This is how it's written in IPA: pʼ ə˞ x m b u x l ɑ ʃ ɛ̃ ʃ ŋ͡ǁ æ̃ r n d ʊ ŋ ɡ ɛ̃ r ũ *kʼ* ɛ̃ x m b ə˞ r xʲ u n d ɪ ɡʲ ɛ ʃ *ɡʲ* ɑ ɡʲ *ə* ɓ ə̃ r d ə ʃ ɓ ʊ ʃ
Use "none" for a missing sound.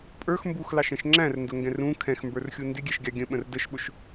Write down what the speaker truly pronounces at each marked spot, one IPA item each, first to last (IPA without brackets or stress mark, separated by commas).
kʰ, ɡʲ, ə̃